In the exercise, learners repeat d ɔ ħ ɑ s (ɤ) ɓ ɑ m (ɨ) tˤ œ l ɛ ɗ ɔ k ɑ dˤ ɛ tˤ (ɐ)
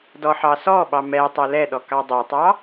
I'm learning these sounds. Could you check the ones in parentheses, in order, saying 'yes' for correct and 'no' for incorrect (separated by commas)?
no, no, no